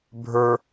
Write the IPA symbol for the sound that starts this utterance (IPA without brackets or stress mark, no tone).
bʱ